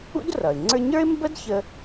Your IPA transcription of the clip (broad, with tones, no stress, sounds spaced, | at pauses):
ṵ˥ d r ʌ˩ ɪ̯ ŋ͡ǀ ə˞˥ ɲ ə˞˥ ɪ̯ m b ə˥ d ç ə˥